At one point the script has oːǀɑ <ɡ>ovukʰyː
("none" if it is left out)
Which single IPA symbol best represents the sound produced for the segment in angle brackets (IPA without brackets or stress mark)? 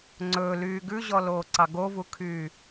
ɡ